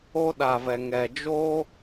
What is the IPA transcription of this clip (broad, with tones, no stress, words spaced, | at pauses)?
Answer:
o˦ɗa˨vɛ˨ ŋɛ˨d͡ʒo˦